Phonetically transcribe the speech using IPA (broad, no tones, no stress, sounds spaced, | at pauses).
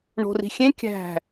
ɳ o̤ r i̤ xʲ ẽ kʲ æ̤